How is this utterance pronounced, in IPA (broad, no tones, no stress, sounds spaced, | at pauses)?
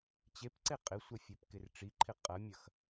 t͡ɕ e p ǀ e qʼ ɪ sʷ ɐ fʲ œ p k ɪ r ʈ͡ʂ i ǃʰ ɪ qʼ ɐ mʲ ɐ x